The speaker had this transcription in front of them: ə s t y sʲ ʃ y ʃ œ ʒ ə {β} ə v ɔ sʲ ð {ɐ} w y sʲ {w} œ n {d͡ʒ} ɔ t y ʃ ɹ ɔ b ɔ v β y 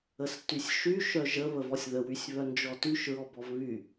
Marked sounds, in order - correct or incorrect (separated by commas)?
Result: correct, incorrect, incorrect, correct